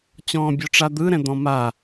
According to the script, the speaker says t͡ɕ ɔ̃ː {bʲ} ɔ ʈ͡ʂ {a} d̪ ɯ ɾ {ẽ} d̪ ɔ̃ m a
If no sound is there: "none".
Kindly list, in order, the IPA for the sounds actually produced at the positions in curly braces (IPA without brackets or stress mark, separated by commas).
bʲ, a, ɛ̃